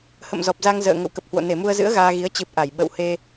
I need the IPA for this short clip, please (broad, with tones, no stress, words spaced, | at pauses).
hə̰˧˨mzɔ˨˩p̚za˧ŋ zə̰ː˧˨ ŋə̰˧˨wkə˨˩p̚hwo̰˧˨ ne˧˩mu˧ə̯zɨ̰˧˥ə̯ ɣaː˧ɣi˨˦ə̯ t͡ɕɨ˨˩p̚ ʔa˧˩j ɓə̰˧˨whe˧